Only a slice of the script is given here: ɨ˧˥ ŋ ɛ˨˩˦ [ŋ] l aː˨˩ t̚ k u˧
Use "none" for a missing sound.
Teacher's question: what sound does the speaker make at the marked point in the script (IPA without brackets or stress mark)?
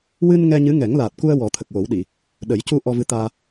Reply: ŋ